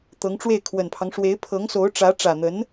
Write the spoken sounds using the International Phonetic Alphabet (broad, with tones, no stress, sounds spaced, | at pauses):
t̪ ɤ˧˥ ŋ ʈ͡ʂ w e˥˩ ɪ̯ kʰ w ə˨˩ n pʰ ɑ˦ ŋ ʂ w e˧˥ ɪ̯ pʰ ɤ˧˥ ŋ s o˧˥ ʊ̯ ʈ͡ʂ ä˧˥ ʈ͡ʂ ä˨˩ n̪ ə˧˥ n